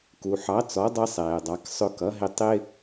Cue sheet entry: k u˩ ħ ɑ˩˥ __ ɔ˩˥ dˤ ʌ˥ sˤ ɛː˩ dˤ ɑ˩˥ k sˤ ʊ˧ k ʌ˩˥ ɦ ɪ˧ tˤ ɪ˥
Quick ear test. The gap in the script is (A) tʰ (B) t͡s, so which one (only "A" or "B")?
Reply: B